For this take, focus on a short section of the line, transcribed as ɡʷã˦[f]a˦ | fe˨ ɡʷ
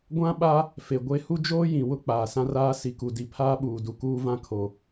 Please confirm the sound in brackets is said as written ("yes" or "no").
no